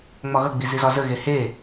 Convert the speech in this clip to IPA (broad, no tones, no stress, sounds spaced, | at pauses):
ŋ͡m ɒ ɣ ʌ ɡ͡b i z i z ɒ z ə ɣ e h e